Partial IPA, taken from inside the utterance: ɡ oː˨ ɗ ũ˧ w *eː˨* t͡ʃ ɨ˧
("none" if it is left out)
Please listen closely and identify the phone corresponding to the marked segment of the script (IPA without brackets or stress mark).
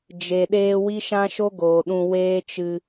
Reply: eː˦